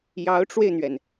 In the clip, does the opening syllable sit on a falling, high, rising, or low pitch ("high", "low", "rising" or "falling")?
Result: rising